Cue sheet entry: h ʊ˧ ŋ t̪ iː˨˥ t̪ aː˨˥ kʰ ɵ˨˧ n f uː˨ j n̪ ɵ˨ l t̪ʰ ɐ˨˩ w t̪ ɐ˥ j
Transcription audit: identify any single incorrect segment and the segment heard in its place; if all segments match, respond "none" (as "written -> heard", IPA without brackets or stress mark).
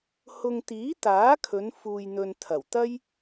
l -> n